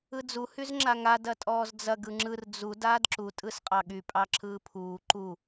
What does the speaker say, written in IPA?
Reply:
ɯ d͡z u h y z ŋ͡ǁ a ŋ a d ɐ tʼ ɔː z d͡z ɐ ɡ ɯ ŋ͡ǁ ɯ r d͡z u d aː d ǁ u tʼ ɯ s qʼ ɑ ɠ y pʼ ɑ ǁʰ ɯː pʰ uː ǃ u

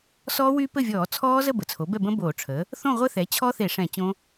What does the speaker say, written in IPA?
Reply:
s ɔː˦˥ w y˦˥ p ɘ˥˨ vʲ ɔː˧˩˧ t͡sʰ ɔː˦˥ z ə˥˨ b ə˩˥ t͡sʰ o˩˥ b ɛ˥˨ b ə̃˦˥ b oː˧˩˧ ʈ͡ʂʰ ə˩˥ | θ õ˥˨ ʁʷ ə˦˥ θ ɛ˩˥ t͡ɕʰ ɔ˦˥ θ e˧˩˧ ʂ ɛ̃˧˩˧ t͡ɕ õ˦˥

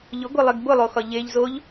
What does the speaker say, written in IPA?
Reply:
ʎ ʊ ɡʷ e lˠ e ɡ b ʊ lˠ o x ɒ ʎ e ʎ z o ʎ

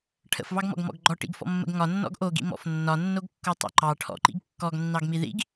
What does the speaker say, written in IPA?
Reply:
ʈʰ ə̰ f v ɑ ɡ m ɔ̰ ɡ m ɔ̰ ɡ ɡ͡ǃ ɔ ʈ ḭ ɡ f ɔ̰ mː ə̰ ɡ ŋ ɒ nː ɔ̰ ɡ ʔ o ɡ ḭ m ɔ̰ f nː ɒ nː o ɡ kː o tˤ o̰ ǃ ɑ ʈʰ ɔ̰ ǃ ḭ ɡ kː ɔ ɡ nː ɑ ɡ m i ð ḭ ɡ

